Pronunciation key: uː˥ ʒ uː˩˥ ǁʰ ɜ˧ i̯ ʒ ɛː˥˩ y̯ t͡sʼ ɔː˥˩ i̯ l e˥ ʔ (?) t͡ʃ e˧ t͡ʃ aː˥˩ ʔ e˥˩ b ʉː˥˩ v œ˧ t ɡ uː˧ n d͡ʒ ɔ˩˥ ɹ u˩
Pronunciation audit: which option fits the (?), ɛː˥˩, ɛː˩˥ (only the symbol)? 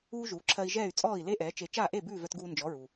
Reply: ɛː˩˥